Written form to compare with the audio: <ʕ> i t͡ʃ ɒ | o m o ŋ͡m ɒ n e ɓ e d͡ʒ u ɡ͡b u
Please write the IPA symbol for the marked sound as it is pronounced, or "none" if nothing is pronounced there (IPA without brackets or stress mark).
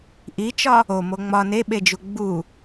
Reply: ʔ